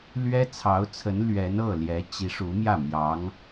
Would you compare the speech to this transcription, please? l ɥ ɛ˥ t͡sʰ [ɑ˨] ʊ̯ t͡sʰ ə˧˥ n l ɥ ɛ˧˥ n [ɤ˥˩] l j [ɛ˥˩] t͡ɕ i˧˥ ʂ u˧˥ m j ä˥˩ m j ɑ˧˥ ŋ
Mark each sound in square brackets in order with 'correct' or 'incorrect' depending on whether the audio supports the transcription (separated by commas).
incorrect, correct, incorrect